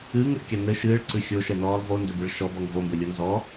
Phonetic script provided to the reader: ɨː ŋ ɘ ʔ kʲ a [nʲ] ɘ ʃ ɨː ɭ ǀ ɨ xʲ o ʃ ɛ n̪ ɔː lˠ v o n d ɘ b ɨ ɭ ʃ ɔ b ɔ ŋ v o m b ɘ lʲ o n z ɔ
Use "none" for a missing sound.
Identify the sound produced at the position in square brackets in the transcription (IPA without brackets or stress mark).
n̪